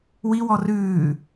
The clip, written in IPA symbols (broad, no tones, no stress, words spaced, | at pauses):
wiwɔ rʉː